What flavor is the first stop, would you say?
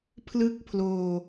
aspirated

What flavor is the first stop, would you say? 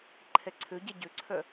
click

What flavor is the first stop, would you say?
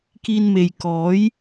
plain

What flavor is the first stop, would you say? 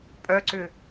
ejective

